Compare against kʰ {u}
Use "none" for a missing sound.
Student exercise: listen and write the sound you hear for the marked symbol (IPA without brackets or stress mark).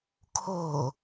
o